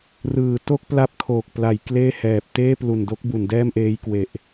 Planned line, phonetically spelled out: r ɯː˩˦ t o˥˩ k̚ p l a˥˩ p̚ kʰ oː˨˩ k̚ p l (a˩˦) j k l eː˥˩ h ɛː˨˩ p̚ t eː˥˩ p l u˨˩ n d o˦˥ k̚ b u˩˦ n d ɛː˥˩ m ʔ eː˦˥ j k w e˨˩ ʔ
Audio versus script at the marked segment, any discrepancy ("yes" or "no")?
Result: no